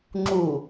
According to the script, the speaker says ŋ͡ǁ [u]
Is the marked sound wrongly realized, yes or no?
no